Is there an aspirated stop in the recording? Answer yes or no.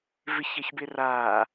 no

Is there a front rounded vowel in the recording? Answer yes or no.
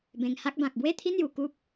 no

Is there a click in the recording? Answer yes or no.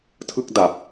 no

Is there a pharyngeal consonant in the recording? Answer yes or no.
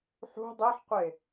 yes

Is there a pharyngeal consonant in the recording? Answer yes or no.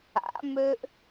no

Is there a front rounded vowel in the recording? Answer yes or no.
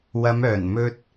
yes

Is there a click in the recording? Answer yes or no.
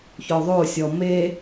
no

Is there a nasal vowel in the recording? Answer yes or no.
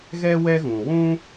yes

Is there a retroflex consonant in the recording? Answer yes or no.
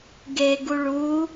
yes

